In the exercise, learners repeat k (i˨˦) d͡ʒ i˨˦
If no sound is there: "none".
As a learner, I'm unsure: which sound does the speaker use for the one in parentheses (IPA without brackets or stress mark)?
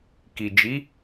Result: i˨